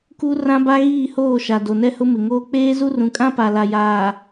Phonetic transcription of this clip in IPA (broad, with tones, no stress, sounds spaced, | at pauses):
k u˦ r ã˦ b a˦ ɣ iː˦˨ h oː˦˨ ʃ a˨ d o˨ n ɛ˦ h ʊ˦ m ɪ˨ ŋ oː˦ k͡p eː˦ z u˦ r ũ˨ kʼ ã˦ p a˨ l a˨ j aː˨